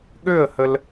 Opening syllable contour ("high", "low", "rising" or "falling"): falling